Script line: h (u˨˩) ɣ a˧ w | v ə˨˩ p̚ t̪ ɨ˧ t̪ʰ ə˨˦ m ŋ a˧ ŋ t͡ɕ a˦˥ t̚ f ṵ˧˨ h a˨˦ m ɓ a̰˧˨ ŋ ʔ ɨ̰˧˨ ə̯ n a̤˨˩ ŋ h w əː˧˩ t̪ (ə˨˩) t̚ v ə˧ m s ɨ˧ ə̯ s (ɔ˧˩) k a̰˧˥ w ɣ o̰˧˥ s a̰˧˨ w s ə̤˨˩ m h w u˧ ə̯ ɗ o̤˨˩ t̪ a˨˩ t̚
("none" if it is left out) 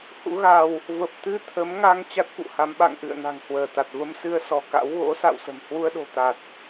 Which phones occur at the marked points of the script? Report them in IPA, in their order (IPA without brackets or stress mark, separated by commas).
ṵ˧˥, a˨˩, ɔ˧˩